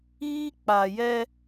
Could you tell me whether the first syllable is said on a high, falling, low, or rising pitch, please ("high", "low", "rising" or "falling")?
high